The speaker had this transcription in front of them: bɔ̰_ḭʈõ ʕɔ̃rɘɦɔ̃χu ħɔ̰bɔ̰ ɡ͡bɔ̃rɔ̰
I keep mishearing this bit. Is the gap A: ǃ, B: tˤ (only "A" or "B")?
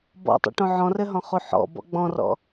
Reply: B